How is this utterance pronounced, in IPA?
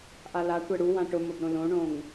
ʔ a l a tʷ ɛ ɽ u w ã ʈ ʊ m o b ɾ õ l õ ɳ õ ŋ

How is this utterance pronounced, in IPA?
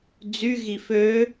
d͡z y ɣ i f ø

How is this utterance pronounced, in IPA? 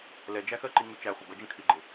l ɛ d͡ʒ æ x ɜ ǃ i ŋ u t͡ʃ æ χʷ ə b ʌ d͡ʒ ə̃ kʰ i ɡ͡ǃ ɪ

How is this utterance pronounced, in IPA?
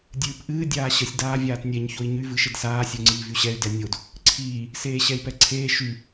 dʲ ɨː p ʔ ɨː dʲ aː ɕ ə sʲ d aː vʲ aː t nʲ ɛ ɲ ç o i̯ ɲ y v ɨ ʃ ɘ d s aː sʲ o ŋ͡ǀ iː v y ɕ ɛ y̯ d ɛ nʲ o d | ǀʰ iː | s eː ɕ ɛ i̯ p ɛ ǀʰ eː ʃ y

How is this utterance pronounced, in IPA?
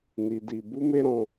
n i˧ d i˧ b u˦ m e˦ ɾ ɔ̃˧

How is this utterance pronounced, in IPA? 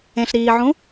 ẽ ɬ ɾ iː ʕ ũ

